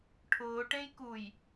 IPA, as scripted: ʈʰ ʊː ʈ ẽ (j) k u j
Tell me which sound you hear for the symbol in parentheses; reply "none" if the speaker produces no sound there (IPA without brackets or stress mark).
j